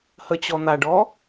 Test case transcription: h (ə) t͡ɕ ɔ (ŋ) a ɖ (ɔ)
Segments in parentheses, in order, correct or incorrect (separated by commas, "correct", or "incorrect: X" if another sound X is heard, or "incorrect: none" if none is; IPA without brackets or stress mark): correct, incorrect: n̪, correct